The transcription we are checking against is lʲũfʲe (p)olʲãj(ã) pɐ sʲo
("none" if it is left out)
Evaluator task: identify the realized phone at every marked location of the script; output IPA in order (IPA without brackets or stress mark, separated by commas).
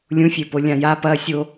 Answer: p, a